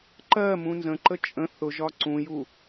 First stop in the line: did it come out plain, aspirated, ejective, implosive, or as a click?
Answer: click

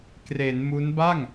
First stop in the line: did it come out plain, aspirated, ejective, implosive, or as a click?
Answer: plain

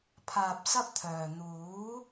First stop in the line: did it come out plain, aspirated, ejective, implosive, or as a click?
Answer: aspirated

